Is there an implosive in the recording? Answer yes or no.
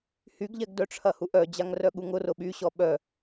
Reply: yes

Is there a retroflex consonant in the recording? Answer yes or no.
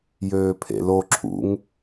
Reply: no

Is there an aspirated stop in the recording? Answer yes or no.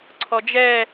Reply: yes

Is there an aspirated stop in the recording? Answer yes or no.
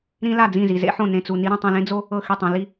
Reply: no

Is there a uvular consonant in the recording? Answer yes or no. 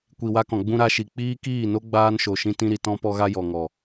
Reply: no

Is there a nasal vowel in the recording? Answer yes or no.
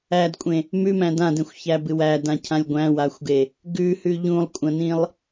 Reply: yes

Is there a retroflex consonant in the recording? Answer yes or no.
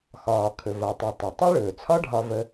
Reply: yes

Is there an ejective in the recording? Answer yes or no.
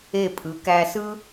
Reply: yes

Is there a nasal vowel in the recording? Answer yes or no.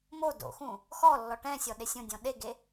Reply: yes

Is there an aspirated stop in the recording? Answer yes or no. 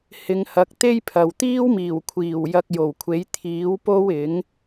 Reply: yes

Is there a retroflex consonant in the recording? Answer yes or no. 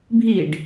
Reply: yes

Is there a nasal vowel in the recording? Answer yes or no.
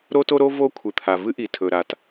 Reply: no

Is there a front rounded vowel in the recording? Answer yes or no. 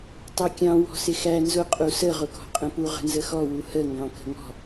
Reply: no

